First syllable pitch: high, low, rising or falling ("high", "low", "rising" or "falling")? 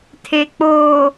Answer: low